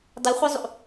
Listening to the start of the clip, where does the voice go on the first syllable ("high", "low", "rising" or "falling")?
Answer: rising